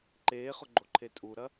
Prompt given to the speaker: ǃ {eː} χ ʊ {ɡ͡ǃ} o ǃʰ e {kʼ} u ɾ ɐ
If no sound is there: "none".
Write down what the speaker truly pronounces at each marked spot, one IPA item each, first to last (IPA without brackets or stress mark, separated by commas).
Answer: eː, ɡ͡ǃ, tʼ